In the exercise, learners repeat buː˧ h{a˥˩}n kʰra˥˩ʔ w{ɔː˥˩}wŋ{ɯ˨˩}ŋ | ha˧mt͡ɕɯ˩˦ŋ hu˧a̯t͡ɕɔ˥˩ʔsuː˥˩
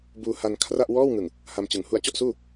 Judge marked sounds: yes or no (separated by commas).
no, yes, yes